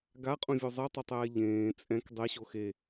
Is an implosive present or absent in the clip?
absent